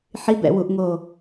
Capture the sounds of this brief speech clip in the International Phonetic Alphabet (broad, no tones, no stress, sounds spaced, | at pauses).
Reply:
ħ i b ɛ̰ w u ʔ ŋ o